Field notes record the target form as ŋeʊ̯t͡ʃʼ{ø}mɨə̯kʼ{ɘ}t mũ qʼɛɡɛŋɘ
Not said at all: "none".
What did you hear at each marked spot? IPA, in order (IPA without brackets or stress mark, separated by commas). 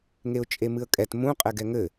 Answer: e, ɛ